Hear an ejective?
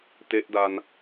no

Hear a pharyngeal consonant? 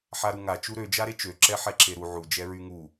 yes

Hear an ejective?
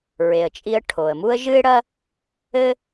yes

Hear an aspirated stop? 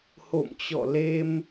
no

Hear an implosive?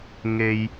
no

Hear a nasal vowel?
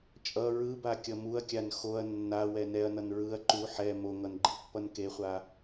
no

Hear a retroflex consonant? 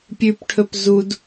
yes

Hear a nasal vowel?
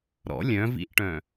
yes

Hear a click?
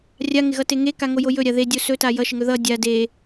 no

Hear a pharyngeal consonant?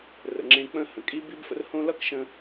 no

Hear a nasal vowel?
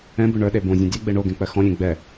yes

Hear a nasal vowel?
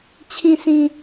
yes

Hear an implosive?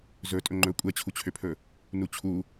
no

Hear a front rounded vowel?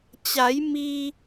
no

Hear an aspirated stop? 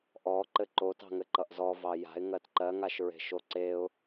no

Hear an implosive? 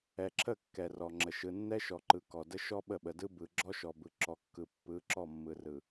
yes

